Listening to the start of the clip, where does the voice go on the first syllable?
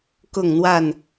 falling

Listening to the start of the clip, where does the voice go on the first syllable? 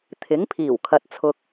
rising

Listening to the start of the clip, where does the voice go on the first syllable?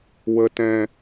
high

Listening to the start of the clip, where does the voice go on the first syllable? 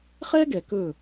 high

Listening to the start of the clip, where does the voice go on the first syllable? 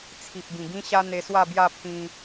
low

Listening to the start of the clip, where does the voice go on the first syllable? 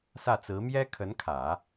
falling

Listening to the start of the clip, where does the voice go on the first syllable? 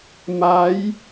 rising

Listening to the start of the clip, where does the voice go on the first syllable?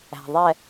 low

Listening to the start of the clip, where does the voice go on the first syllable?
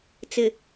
low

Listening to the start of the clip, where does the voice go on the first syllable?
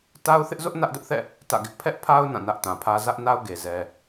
high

